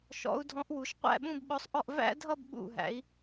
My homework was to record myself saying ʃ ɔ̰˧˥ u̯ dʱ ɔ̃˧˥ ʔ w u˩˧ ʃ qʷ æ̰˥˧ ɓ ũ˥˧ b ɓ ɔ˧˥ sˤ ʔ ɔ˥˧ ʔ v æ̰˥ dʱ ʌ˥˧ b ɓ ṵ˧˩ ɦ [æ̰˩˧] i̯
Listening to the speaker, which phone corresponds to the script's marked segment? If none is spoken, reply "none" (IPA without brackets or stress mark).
æ̰˩˧